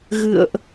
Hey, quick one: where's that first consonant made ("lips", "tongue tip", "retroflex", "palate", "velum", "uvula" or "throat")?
velum